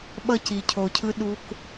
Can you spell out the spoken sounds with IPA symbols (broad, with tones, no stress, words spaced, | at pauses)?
ɓʌ˦ci˨cʰo˨cʰɯ˦ ɗu˦k